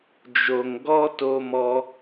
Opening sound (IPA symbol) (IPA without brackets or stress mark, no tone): d͡ʒ